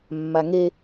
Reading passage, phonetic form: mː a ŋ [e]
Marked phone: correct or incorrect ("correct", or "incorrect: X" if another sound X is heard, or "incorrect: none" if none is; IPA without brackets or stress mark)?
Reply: correct